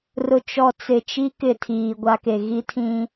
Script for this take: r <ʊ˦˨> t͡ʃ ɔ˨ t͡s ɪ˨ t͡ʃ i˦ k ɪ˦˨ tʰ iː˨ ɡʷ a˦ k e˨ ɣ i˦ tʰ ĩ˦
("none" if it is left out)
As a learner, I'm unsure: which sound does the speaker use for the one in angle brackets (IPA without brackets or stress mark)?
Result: ʊ˨